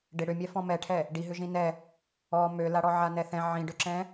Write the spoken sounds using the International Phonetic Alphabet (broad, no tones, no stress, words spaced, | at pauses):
ɖɪ ɽʏmʲɛ fɔ̃mɛʈʰɛ | ɖiɦʏ ʒĩnɛ | ɔ mølaɽɔ ʕanɛθɛ̃ ʕĩɖʏǁɛ̃